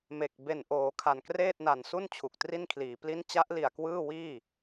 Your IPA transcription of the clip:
m e˨˩ k̚ b e˨˩ n ʔ oː˩˦ kʰ a˨˩ n k r eː˥˩ t̚ n a˨˩ n s u˥˩ n t͡ɕʰ u˨˩ k̚ t r i˥˩ n kʰ l iː˩˦ p l i˦˥ n t͡ɕ a˦˥ ʔ l i˨˩ a̯ k w ɯː˥˩ w iː˥˩

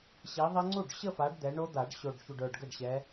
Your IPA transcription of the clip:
ɕ i˨˦ ðˤ ɛ˦˥ ŋ͡ǀ u˥˩ ɖ ɕ ə˥˧ f a˨˦ ɖ d̪ ɛ˨˦ ɳ o˦˥ d̪ a˨˩˦ ɖ ɕ o˨˩ ɖ ç u˨˩ ɖ ə˞˨˩ ɖ ɡ ə˥˩ ɖ ɕ ɛ˨˦

